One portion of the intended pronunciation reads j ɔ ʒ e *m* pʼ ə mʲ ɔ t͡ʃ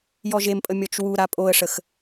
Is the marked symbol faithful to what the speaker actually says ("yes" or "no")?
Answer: yes